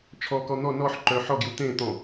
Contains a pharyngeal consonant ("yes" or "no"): yes